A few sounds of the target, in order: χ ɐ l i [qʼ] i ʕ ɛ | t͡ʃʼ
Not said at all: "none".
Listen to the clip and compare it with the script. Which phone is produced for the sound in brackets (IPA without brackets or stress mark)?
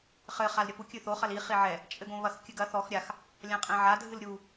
χ